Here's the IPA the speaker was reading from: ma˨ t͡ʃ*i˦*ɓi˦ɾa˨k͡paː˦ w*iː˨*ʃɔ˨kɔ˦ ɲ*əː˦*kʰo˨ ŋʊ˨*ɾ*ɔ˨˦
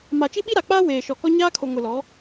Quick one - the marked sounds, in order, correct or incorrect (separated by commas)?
correct, incorrect, incorrect, incorrect